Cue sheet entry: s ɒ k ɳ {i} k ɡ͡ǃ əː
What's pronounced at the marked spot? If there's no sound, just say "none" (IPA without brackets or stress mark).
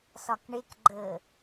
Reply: e